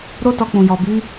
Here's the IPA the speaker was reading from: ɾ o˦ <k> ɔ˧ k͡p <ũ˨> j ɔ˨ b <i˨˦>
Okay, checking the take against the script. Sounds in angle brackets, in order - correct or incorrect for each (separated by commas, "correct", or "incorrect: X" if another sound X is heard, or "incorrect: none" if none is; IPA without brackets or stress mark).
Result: incorrect: t, correct, correct